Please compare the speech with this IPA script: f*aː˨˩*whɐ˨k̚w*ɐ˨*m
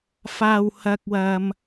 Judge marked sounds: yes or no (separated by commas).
yes, yes